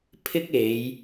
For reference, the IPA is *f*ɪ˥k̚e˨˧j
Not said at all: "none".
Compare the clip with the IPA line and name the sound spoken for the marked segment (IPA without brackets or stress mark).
pʰ